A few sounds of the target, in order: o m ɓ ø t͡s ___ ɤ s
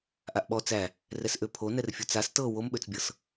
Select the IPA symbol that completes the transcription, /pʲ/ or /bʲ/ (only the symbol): bʲ